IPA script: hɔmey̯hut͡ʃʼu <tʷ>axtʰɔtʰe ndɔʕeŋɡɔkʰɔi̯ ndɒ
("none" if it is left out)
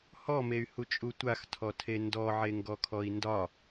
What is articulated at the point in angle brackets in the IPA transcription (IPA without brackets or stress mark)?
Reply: tʷ